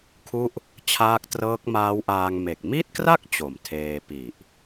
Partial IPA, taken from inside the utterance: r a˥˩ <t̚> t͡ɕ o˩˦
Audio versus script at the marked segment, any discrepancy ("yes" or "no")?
yes